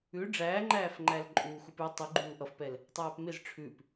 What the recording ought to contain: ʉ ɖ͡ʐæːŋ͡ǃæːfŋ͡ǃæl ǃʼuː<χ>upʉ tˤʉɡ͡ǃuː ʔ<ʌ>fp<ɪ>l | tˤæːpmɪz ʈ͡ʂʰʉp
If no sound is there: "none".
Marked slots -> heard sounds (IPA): x, ʌ, ɛ

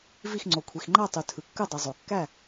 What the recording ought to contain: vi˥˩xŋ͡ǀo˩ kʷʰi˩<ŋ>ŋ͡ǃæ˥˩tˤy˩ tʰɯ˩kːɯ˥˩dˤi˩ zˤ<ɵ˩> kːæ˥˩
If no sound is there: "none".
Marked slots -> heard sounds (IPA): x, o˩

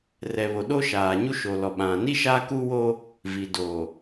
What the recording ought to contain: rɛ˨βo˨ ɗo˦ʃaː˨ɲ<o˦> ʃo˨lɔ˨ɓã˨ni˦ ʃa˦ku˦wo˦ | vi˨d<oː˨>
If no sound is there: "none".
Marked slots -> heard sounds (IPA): u˦, oː˨

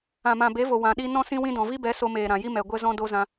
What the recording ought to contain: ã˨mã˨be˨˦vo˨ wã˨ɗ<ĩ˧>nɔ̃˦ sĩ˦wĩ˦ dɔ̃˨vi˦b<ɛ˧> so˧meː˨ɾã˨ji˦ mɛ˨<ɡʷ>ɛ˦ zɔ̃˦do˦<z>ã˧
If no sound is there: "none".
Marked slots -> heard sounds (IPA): i˧, ɛ˨˦, ɡʷ, z

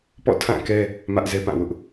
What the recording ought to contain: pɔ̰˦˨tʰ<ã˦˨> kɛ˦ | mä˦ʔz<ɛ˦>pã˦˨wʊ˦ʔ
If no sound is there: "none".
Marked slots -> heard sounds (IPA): ã˦˨, ɛ˦

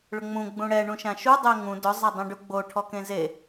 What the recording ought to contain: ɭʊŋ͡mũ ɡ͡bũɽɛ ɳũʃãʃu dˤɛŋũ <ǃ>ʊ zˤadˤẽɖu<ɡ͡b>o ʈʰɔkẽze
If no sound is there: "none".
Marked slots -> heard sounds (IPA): d, ɡ͡b

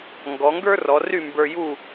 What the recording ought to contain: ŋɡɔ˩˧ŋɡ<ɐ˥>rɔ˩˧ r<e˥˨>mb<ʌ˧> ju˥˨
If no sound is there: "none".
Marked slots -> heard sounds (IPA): ə˞˥, y˥˨, ə˞˧

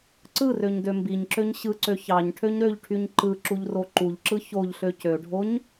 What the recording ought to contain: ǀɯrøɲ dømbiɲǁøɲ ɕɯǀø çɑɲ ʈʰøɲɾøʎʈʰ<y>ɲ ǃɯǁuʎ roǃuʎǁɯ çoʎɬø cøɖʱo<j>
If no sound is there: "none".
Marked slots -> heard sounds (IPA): y, ɲ

